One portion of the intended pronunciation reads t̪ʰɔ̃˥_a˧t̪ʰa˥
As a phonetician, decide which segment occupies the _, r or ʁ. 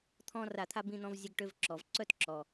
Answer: r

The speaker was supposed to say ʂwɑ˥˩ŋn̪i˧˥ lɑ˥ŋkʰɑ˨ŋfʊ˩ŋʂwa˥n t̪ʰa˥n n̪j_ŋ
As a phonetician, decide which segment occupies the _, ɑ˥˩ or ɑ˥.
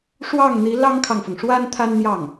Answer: ɑ˥˩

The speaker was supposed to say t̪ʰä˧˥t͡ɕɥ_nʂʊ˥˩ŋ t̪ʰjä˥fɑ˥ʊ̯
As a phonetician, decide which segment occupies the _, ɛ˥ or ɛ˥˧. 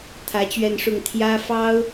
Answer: ɛ˥˧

